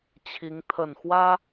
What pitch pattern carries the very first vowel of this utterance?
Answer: rising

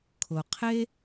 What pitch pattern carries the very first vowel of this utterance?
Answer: low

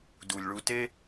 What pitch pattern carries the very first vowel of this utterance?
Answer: low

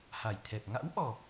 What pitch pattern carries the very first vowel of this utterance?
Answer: low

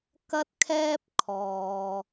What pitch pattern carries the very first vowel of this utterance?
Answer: high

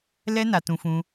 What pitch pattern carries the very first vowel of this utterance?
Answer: high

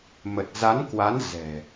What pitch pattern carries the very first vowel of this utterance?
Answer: low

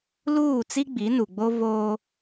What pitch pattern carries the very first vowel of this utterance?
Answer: falling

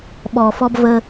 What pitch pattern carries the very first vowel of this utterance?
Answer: low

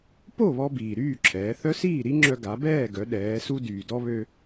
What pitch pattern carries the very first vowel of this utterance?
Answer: falling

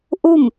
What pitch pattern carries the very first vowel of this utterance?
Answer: falling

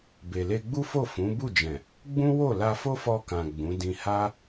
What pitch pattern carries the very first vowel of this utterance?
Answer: low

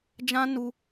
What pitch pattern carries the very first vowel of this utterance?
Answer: high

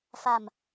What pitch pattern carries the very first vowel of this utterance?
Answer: low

